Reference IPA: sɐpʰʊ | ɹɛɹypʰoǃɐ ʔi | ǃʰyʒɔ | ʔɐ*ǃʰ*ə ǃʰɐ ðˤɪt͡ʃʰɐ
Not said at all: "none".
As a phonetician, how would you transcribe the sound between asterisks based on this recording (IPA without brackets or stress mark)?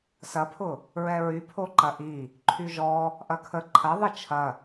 kʰ